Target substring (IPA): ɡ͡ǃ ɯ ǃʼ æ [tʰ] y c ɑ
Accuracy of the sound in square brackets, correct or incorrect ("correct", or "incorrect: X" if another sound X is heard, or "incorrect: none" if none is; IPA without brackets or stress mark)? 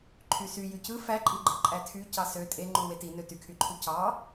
correct